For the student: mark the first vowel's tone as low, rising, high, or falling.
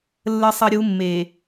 high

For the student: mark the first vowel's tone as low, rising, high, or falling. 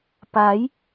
rising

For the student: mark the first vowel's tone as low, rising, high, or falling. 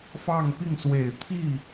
falling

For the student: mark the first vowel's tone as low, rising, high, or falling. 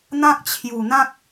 high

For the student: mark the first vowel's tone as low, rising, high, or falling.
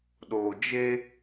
low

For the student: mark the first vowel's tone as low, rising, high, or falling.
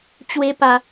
high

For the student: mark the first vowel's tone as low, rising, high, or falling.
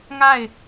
falling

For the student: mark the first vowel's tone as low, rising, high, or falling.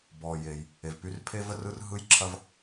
low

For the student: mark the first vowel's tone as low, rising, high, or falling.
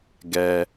low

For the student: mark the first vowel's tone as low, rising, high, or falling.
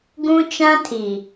high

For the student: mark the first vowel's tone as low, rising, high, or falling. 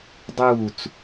falling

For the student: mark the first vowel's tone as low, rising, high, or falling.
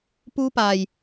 high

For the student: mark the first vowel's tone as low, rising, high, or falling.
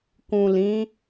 low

